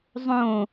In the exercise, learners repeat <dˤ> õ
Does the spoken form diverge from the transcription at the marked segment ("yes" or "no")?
yes